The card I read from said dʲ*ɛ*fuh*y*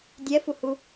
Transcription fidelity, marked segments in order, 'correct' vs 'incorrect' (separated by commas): correct, incorrect